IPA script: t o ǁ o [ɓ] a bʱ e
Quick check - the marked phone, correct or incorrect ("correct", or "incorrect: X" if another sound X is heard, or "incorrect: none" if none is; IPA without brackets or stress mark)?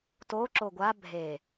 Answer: incorrect: ɡʷ